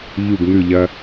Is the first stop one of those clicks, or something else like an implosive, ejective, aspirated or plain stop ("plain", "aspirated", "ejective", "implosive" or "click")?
plain